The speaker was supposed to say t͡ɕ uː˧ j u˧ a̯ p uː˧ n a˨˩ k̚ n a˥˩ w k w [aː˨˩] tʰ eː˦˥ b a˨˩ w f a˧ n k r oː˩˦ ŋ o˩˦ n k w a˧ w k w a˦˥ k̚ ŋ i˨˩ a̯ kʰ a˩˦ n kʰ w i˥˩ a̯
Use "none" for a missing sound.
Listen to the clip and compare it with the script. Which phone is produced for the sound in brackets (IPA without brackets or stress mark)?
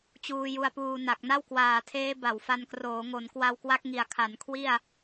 aː˨˩